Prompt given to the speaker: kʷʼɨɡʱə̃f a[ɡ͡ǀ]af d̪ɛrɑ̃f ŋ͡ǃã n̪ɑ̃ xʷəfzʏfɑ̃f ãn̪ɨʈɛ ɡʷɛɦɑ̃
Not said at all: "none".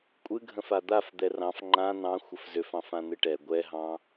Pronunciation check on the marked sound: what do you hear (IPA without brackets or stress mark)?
d̪